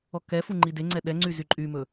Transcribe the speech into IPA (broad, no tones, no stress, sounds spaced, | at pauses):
ɔ k ɛ f u ŋ͡ǃ i d e ŋ͡ǀ ɛ ɗ ɛ ŋ͡ǀ y z y ǃʼ y m ɵ